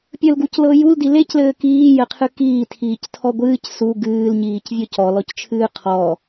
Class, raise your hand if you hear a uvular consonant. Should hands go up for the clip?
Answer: yes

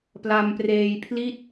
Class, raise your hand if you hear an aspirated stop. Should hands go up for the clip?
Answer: yes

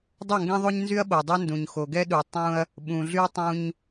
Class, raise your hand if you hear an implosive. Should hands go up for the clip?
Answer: yes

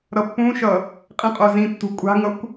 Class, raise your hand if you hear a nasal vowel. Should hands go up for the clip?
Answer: yes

